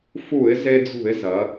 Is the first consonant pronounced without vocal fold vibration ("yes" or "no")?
yes